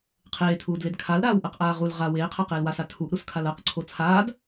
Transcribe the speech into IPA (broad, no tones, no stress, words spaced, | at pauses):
qʰeːtʰuːdled kʰalɾaːwʔɜqʔaː ʁul ʁa weːqʰaqeːl wasa tʰuʔɾuskʰal ɜqǀʰo t͡sʰaːd